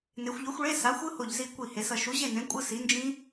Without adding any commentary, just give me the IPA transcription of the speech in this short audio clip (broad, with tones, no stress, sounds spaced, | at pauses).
n e˩˧ xʷ ʎ o˨˥ xʷ ɭ e˧˥˧ s a˨˥ xʷ ɯ˦˥ h o˧˩ ʎ z i˧˩ kʷ i˧˩ h e˩˧ s ʌ˩˧ ʃ u˨˥ ʑ e˥˨ n ẽ˨˥ kʷʼ ɯ˧˥˧ s i˨˥ n d͡ʒ ĩ˦˥